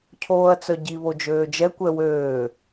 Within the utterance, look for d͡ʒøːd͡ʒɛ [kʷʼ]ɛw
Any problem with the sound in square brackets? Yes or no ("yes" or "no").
yes